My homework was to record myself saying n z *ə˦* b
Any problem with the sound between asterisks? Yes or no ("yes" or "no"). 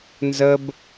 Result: no